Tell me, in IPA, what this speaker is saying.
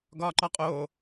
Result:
ɡɒːǃɒqʼoː

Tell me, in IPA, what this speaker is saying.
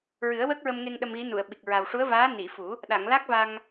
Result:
ɹɨ˨˩˦ə̯wəː˦˥k̚ɹə˧mŋe˧ŋ ɗə˧mɣi˧˥nu˨˩˨ə̯ɓi˨˩k̚ ɹa˨˩wʂu˧˥ə̯vaː˧˥ ni˨˩˨fu˨˩˦ | ɗa˨˩˨ŋ la˦˥k̚va˧ŋ

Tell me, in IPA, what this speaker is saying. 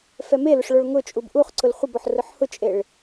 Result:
fɛmelʊʂ ɭoɭŋʊt͡ʃʼub ʔuχǀʊl χʷɪbɔħ rʊħhʊt͡ʃʼeɭ

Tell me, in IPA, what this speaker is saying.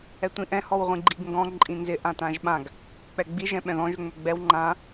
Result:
ɛtʷĩʔɛ̃ hɔwʁʷĩɡ͡ǃiɡŋɡɔ̃ ǃʼĩnzɪ ʔãtãʒɓãɡ | k͡pɛɡ͡bi ʒɛ̃ɓɛ̃ðɔ̃ʒ ʏŋ͡mʏɡ͡bɛw ŋ͡ǃã

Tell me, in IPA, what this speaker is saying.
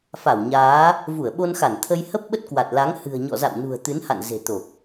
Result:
fa˧˩wɲaː˨˦ | vu˧˩ə̯ɓo˧nxa˧˩nt̪ʰə˧j hə˦˥p̚ɓə˦˥t̚kwa˨˩t̚la˨˦ŋ hɨ̤˨˩ə̯ɲɔ̰˧˨za̰˧˨wnṳ˨˩ə̯ t̪ɨ˨˦nha̰˧˨n ze̤˨˩t̪o˨˩k̚

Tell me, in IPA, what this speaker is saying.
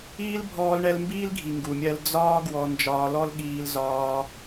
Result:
iː˦lbʱɔː˧lɳɛ˧l mbiː˦lɡʱi˨ ŋɡu˨mʲɜ˧l d͡zɒː˦ ɡwɔ˧nd͡ʒɒː˧lɔ˦l ɠiː˧lzɒː˧

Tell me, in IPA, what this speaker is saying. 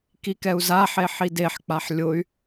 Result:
kikɛu̯zaħe ħideħk͡paħ lʲʊy̯

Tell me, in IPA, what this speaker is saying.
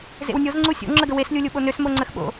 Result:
zḛwnʲozŋ͡ǀu sʲo̰ŋ͡ǁəɡə weslʲulʲu ɓonøs moŋ͡ǀəxɓo̰

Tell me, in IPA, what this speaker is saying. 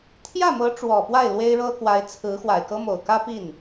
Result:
t̪ʰjä˥˩mɤ˧˥ ʈ͡ʂwɔ˨˩pwa˥˩ɪ̯ lwe˥ɪ̯ɻɤ˥kwa˧˥ɪ̯ t͡sʰɹ̩˧˥ xwa˨˩ɪ̯kɤ˥mo˨˩ʊ̯ kä˥pi˥˩n

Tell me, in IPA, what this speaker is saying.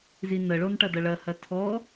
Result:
zinəɭonʈɐ dɐɭɐhɐ tʰɔ

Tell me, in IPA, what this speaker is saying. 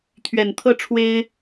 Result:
t̪ʰɥɛ˨˩nt̪ʰɤ˥˨ ʈ͡ʂʰwe˦ɪ̯

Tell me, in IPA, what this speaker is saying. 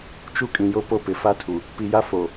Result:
t͡ʃu˦kʼĩ˨jo˦ po˦pɪ˨ fa˦tʰu˨ | pi˨ja˦ fo˨

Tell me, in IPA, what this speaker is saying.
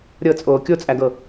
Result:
ɾʲɤt͡sʼoː kʲot͡sʼæɡɤ

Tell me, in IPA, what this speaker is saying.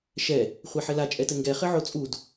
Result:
ʃɛ | χʷeħɘla t͡ʃʼɛtɘŋɡɛ χɘʕot͡sʼud

